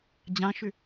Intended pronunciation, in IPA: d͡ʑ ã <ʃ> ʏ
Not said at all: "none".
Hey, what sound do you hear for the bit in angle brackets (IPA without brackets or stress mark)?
ʃ